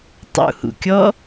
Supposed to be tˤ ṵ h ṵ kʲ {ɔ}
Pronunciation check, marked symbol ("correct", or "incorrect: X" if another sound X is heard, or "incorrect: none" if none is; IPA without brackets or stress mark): correct